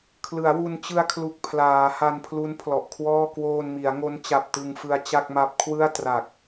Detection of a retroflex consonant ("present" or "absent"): absent